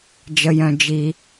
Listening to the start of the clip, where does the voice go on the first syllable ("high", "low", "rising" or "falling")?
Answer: low